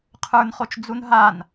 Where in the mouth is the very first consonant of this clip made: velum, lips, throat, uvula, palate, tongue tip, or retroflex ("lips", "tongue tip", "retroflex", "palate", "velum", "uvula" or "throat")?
uvula